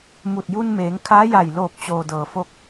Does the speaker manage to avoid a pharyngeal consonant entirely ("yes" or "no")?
yes